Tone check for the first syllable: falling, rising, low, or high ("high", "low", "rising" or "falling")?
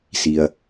low